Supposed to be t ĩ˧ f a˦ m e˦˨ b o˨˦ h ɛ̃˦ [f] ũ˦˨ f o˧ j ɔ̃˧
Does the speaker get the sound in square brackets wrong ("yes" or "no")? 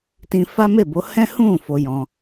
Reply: yes